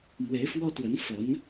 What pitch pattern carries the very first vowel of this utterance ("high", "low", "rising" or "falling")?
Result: rising